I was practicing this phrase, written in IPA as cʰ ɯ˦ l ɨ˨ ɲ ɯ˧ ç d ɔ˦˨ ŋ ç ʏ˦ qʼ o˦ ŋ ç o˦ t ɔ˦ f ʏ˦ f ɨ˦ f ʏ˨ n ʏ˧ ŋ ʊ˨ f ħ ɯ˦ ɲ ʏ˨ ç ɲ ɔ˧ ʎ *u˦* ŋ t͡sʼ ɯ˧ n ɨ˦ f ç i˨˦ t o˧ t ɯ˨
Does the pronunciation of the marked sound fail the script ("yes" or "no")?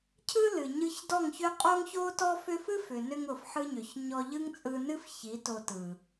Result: yes